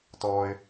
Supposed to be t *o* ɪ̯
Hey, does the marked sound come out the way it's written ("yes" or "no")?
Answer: no